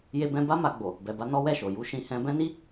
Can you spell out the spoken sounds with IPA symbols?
j e˧ b ɛ̃˧ b a˦ m a˧ ɡ͡b o˨ | b ɛ˨ b a˧ n ɔ˦ w ɛ˦˨ ʃ o˨ j u˧ ʃ ĩ˧ h ɛ̃˧ b ɛ̃˦ n i˦

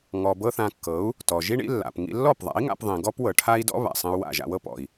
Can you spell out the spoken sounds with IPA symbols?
ŋ ɔ˧ b ɤ˦ θ ã˧ kː ɤ˨˦ u̯ | t ɔ˨ ʒ i˦ ɳ ḭ˦ lː a̰˨ p ŋ ḭ˧ lː ɔ˦˨ p ðˤ a̰˨˦ i̯ ŋ a̰˦ p ðˤ ĩ˧ ɡ ɔ˦ p w ɤ˨ ʈʰ a˦ i̯ d ɔ̰˦ β a̰˨ sˤ ĩ˧ u̯ w a̰˦˨ ʒ a̰˧ w ɤ˦ p ɔ̰˨ i̯

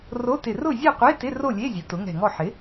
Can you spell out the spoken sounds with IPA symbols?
r o˧˥˧ t ɪ˧˩ r ʊ˥˨ zʲ ɛ˥˨ qʷ e˧˥˧ t ɪ˧˥˧ r o˥˨ lʲ e˧˥˧ zʲ ʊ˩˥ t ʊ˩˥ ŋ ɛ̤˧˩ ŋ ɔ˥˨ ħ ɪ˩˥

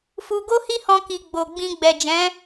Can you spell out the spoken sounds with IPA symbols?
f u˧ ɡ o˦ h i˦ h ɔ̃˧ k i˨ ɡ͡b o˨ ɡ͡b ĩ˧ ɡ͡b ɛ˨ d͡ʒ ɛ̃˨˦

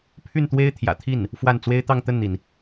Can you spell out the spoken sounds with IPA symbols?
pʰ y˥˩ n t̪ w e˥ ɪ̯ t̪ʰ j ä̰˨˩ t̪ʰ i˥˩ n | f w a˥˩ n t͡s w e˥ ɪ̯ t̪ ɑ˥˧ ŋ t̪ ə˥˩ n n̪ i˩ n

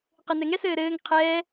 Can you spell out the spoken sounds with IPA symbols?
q ɘ n ɛ ŋ ɛ s ɘː ɾ ɘː ŋ qʰ ɛː

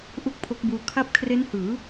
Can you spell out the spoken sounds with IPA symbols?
ʔ u˥˩ k̚ pʰ o˦˥ k̚ b uː˧ kʰ a˦˥ p̚ kʰ r e˦˥ n h ɯː˩˦

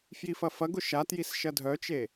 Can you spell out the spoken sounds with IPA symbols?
f j i f ɐ f ɐ ɡ ʊ ʃ a t j i s ʃ ɐ dʱ œ t͡ʃ e

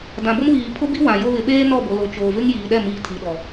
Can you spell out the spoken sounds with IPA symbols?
d ã˨ b ʊ˦ m β iː˨ pʰ ʊ˦ b i˦ w ã˨ j o˦ β ɪ˨ ɓ eː˦ n ɔ˦˨ b o˨ l o˨ t͡ʃ oː˨ v ɪ˦ ŋ j iː˨ ɗ ɛ˦˨ m iː˨ tʰ i˨ ɗ ɔ˨

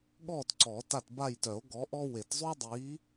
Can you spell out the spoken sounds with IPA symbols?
ɠ ɔː˦˨ t ǀ ɔː˨˩˦ t a˦˨ t b a˦˨ j t œ˨˩˦ o̯ ɡ ɔ˨˥ ʔ ɔ˥ w e˨˩˦ t zˤ y˥ dˤ iː˨˥

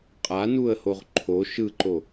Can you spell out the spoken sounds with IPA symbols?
qʼ a n u ə̯ h o ʁ ǃʰ o ʃ ɯ ǃ o

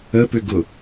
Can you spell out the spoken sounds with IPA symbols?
ə p ʏ ɡ ʊ

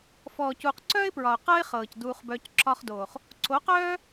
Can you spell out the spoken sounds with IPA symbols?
f ɔː˨ c uː˨ q ǀ œː˦ ɪ̯ p ɹ ɒ˨ ʊ̯ q ɤ˦ ɪ̯ χ ɤː˨ c d uː˧ χ b œː˧ c ǁ ɒ˦ χ d oː˨ χ | ǀ o˨˦ q œː˦

